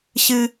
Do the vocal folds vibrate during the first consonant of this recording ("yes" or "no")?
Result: no